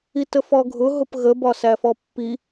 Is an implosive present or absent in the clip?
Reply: absent